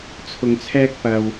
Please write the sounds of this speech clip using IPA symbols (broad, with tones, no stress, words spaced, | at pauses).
t͡sʰʊ˨ŋt͡sʰɛː˥k̚ pɐ˨w